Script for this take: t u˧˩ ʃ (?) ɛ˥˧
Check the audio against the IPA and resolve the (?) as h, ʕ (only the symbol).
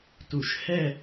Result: h